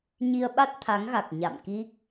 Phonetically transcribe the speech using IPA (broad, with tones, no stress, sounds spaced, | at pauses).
ɲ i˧ ə̯ ɓ a˦˥ t̚ t̪ʰ a˨˦ ŋ ɣ a˨˩ k̚ ɲ a̰˧˨ m k i˦˥ k̚